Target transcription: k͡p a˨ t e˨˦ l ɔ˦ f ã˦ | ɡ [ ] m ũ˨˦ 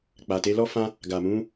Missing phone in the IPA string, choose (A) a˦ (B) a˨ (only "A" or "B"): B